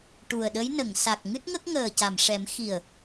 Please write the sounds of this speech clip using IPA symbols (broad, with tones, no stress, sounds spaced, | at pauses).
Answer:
ʈ u˨˩ ə̯ ɗ ə˧˥ j n ə˨˩˨ ŋ s a˨˩ k̚ ŋ ɨ˦˥ t̚ ŋ ə˦˥ k̚ ŋ əː˨˩ c a˨˩˨ m ʂ ɛ˨˩˦ m x i˨˩ ə̯